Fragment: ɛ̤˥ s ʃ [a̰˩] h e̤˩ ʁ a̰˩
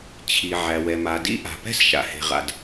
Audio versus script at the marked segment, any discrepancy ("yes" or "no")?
no